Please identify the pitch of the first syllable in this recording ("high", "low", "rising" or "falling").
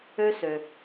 high